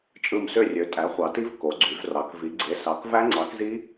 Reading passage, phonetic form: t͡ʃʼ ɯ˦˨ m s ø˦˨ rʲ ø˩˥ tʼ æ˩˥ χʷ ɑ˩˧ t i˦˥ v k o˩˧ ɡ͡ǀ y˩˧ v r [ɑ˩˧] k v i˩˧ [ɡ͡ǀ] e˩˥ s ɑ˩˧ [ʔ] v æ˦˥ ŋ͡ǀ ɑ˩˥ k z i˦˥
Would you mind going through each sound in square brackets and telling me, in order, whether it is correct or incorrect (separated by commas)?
correct, correct, incorrect